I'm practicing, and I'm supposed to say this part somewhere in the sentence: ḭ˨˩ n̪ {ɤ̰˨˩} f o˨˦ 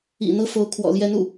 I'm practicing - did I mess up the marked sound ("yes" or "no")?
yes